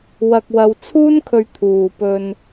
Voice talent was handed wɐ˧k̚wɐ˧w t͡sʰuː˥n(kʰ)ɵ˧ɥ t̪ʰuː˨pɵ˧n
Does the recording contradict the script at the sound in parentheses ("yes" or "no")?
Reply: no